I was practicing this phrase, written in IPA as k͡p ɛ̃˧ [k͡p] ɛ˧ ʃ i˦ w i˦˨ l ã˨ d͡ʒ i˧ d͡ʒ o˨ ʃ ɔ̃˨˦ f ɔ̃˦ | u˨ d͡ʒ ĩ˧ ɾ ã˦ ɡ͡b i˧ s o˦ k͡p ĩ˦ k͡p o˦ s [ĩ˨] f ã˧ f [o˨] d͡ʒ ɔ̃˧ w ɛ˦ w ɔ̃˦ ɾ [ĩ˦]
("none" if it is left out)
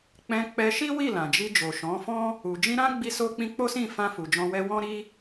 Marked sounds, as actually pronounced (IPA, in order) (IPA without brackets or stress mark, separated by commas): k͡p, ĩ˦˨, u˨, i˦